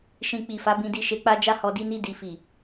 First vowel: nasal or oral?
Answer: nasal